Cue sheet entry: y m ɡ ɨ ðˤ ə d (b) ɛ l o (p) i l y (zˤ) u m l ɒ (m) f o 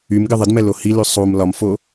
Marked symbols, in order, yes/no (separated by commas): no, no, no, yes